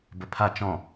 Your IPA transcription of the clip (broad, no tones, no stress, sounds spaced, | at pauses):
b ə pʰ a t͡ʃ ɔ̃